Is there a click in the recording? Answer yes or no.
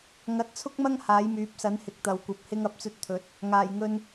no